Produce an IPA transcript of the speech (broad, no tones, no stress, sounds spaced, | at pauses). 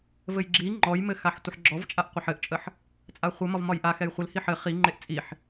v ɘ j ɡ͡ǁ i ŋ͡ǃ ɔ j m ɘ x a ħ tʷ ə ħ ɡ͡ǁ ɔ v t͡ʃʼ a ʔ qʷ a ħ ɘ ʔ t͡ʃʼ ə ħ | t͡sʼ a χʷ ɘ m ɒ v m ɒ j ʔ a x ɛ j χʷ ɘ l h i ħ ɘ χ i ŋ͡ǃ e ʔ t͡sʼ i ħ